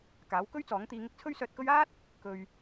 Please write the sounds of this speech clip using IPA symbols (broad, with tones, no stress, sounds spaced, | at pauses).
k aː˨˥ w k ɵ˥ ɥ t͡s ɔː˨˥ ŋ t̪ iː˧ ŋ ɪ˥ k̚ t͡sʰ ɵ˥ ɥ s œː˧ t̚ k ɵ˥ ɥ aː˥ t̚ | k ɵ˧ ɥ